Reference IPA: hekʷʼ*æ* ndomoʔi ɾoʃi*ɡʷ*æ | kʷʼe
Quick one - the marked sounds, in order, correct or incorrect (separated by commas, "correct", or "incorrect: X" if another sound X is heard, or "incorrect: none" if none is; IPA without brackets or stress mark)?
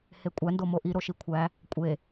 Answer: correct, incorrect: kʷʰ